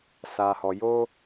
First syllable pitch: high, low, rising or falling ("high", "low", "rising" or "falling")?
low